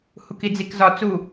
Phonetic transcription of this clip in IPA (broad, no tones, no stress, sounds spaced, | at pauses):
h u k i d͡z i k z ɒ t͡s u